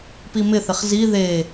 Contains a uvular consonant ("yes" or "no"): yes